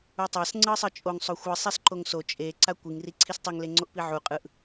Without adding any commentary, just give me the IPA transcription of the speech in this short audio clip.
u tˤ a s ŋ͡ǀ ɯ sˤ ɯ t͡ʃʼ o ŋ sˤ o xʷ ɯ sˤ e s ǃ o ŋ s o t͡ʃʼ e ǀ a kʷ i ŋ r i ǀʰ i s tˤ o ŋ l e ŋ͡ǀ o ʔ p i ʕ u qʼ ɯ ʔ

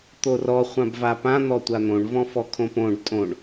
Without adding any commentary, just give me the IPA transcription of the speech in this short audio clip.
t̪ o r ɔ χʷ ã b v a p ã n̪ ɔ tʷ a n̪ õ ɳ v ɔ̃ f ɔ kʰ õ p õ ɖ tʼ õ ɳ

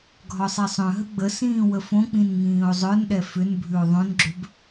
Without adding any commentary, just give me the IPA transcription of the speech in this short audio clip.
ɡʱ ɒ sˤ ɛ sˤ œ̃ ɦ ə ɡ͡b ə s ĩː w ə f õ k͡p ĩ n ŋ ĩː o̯ zˤ œ n ɗ ɛ f ʏ n bʱ ʉ o̯ ðˤ õ n ɡ͡ǁ ʏ b

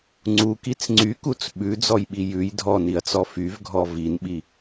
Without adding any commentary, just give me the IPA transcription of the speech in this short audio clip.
ŋ͡ǀ u k i t͡s ŋ͡ǀ y k u t͡s ɓ ʉ d͡z ɔ j ɓ i j ʉ j dʱ ɔ n i ɐ̯ t͡s ɔ f y v ɡʱ ɔ v i n ɓ i

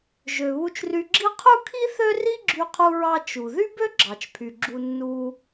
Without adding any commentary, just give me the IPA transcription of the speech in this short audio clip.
ʒ ø˩ β u˧ t͡ʃ r y˧ ɡ͡ǁ i˥ qʰ u˥ kʰ i˥ θ ø˥ r i˥ ɡ͡ǁ y˧ qʰ u˧ ɹ ɑ˧ t͡ʃ u˩ ð y˥ b ø˥ ɡ͡ǁ ɑ˩ t͡ʃ pʰ y˩ ɡ͡ǁ u˧ nː u˧

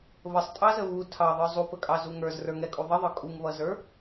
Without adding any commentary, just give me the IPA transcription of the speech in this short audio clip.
β ə sˤ tʼ ɑ z ə β u tʰ ɑ ðˤ ə˞ zˤ u p ə kʼ ɑ z u ŋ ə˞ z r ə˞ ŋ ɛ kʼ u ðˤ ə ðˤ ə˞ kʼ u ŋ β ʌ z ə˞

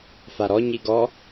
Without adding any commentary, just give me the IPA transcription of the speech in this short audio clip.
f a ɾ ɔ ɲ i ɡ ɔ

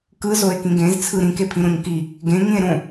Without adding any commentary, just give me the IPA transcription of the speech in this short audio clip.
k ɯ z o e̯ k ĩ ɡ ẽ z t͡sʰ ɯ ɾ ĩ k e pʰ ĩ ɾ õ ɲ k i | ɡ ẽ ŋ ĩ e̯ ɾ õ

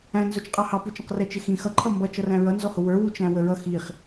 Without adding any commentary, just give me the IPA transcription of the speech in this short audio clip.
æ̃ n z ʊ t͡ʃ qʼ ɑ h ɑ p u t͡ʃ æ̃ q r ɛ t͡ʃ ɪ x ĩ x ʌ ǃʰ ʌ m b ʌ t͡ʃ ʌ r æ̃ ɹ ʌ n z ɔ h ʊ w ə˞ w u t͡ʃ æ̃ w ə ɹ ʌ x i χ

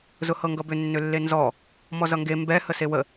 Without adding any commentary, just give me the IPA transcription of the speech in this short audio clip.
z ʊ h ɤ ŋ ɡ ʌ b ʏ nː ʏ lː e n z ɔ | m ɔ z ʌ ŋ ɡ e m b ɛ h ə s e w ə

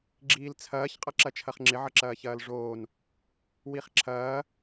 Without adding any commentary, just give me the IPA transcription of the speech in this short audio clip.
ɡ͡ǁ iː l t͡sʰ ɐː ç qʼ ʌ ǁ ɐ t͡ʃʰ ɐ χ ŋ͡ǁ ɪ ʕ ʌ ǁ ɐː ç ɐː l ʐ oː n | w i χ ǁʰ ɐː

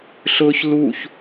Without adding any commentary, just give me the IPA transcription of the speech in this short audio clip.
ɬ ʊ ç l u ç

